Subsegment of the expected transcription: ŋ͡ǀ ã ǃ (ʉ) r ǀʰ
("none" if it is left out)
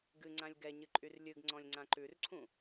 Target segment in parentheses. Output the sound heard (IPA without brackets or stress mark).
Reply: ʉ